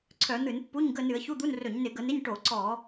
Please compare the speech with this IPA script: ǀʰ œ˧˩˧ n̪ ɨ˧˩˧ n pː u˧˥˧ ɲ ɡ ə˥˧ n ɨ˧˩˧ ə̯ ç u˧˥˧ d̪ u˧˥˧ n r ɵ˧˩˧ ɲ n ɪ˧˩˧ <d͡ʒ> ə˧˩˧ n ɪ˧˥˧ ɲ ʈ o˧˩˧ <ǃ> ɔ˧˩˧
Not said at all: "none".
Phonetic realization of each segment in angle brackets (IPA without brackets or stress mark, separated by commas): ɡ, ǀ